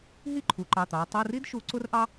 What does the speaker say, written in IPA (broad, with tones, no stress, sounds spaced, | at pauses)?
ɦ i˥˨ ǃʰ u˩˧ ǃ ɑ˩˧˩ t̪ ɑ˩˧ ɐ̯ tˤ u˩˧˩ r i˦ d ʃ u˩˧ ǀ ʊ˦ r ʔ ɑ˦